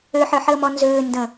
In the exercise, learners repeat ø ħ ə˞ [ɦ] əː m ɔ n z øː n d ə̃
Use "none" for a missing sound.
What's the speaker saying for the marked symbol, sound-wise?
ħ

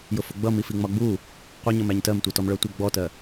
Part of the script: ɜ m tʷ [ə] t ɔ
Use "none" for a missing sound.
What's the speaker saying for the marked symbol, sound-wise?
ʌ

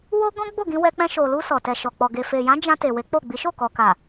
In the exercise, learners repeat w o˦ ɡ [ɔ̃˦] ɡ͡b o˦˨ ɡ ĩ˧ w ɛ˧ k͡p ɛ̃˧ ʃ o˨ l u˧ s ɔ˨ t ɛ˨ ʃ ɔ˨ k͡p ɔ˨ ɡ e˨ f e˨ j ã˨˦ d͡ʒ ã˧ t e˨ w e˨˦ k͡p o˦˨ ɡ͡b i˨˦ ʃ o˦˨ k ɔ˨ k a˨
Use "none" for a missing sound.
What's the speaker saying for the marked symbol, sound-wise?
ɔ̃˦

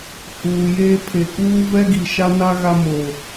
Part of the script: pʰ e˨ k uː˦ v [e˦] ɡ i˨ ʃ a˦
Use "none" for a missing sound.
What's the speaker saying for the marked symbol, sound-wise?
ɛ˦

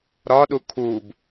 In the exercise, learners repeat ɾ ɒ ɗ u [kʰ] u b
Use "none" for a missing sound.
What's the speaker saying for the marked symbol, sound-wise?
kʰ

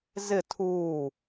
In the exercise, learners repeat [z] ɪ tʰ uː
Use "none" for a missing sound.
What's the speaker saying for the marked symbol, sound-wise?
z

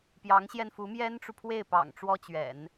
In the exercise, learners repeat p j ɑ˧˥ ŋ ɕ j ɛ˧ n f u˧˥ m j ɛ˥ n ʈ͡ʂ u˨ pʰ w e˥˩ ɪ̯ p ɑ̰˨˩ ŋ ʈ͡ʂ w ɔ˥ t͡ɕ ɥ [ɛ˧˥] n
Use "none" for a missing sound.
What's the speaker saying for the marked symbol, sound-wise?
ɛ̰˨˩˦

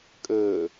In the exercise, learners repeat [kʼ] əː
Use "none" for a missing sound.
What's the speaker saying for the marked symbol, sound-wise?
kʼ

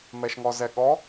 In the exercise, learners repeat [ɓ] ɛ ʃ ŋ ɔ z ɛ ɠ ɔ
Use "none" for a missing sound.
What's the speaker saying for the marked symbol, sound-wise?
m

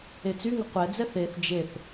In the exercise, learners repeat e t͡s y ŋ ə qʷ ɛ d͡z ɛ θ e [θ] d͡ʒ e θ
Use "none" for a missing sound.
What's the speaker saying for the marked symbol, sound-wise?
θ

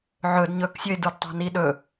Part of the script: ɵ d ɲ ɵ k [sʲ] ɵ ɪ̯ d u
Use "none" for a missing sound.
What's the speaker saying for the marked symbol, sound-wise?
sʲ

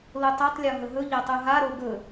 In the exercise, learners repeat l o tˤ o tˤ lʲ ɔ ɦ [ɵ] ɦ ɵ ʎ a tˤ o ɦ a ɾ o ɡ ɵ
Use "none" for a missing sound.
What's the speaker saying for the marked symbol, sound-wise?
ɵ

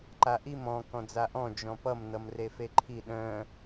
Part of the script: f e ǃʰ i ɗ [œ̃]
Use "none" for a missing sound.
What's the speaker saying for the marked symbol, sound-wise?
œ̃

